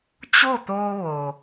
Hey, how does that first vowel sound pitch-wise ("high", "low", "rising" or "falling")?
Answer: falling